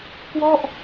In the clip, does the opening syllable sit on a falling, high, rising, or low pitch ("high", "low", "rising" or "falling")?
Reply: falling